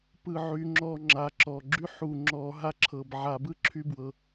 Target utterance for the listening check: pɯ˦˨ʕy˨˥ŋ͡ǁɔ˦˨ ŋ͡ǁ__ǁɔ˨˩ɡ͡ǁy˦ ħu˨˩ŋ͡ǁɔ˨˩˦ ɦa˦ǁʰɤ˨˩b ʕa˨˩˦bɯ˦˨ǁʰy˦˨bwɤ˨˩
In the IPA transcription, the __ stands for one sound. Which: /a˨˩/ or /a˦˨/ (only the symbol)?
a˨˩